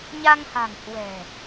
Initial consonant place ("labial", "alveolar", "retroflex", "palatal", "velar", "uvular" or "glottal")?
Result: palatal